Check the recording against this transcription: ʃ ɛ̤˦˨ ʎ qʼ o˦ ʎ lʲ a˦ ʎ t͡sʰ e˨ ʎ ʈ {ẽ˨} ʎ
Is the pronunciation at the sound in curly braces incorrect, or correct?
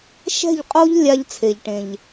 correct